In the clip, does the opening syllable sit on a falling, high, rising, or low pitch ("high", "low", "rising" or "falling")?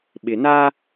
low